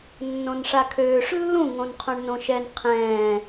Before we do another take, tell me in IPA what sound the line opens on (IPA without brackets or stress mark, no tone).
nː